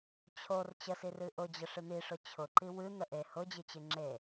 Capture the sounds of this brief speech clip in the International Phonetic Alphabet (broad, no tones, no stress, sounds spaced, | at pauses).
t͡ɕʰ o r t͡ɕ ə s i r ɨ ʔ ʊ d͡ʑ ə ʂ ɨ n̪ i ʂ ʊ t͡ɕʰ ʊ ǃ i w ɨ n̪ ə ʔ e h ʊ d͡ʑ ɨ t͡ɕ ɨ ŋ͡ǁ e